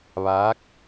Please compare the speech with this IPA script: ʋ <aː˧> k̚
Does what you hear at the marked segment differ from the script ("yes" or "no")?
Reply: yes